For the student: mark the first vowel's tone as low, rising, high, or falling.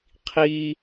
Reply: high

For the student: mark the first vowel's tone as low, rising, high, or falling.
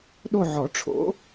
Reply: falling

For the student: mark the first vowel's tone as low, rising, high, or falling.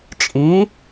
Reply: rising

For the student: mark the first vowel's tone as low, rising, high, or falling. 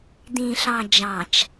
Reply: low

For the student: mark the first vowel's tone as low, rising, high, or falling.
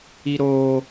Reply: high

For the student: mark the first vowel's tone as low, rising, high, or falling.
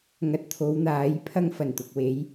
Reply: low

